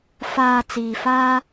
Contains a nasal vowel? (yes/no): no